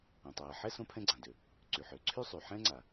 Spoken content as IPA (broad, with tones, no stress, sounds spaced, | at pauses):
ã˩ tˤ ɜː˩ ħ ɛ˥ s õ˥ pʰ ɛ̃˥ ɡ͡ǀ ã˩ d ø˩ | ǀ y˩ ħ ø˩ ǀʰ y˥ sˤ y˩ ħ ɛ̃˥ ŋ͡ǀ a˩